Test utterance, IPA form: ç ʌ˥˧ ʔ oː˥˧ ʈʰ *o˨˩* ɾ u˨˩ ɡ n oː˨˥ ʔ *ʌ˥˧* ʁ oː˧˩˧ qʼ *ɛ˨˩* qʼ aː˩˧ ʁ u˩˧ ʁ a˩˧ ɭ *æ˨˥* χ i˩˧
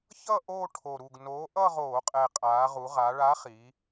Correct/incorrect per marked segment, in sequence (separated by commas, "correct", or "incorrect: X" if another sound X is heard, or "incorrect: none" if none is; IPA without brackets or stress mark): correct, correct, correct, incorrect: a˨˥